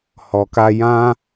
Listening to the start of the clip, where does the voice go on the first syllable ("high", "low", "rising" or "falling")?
low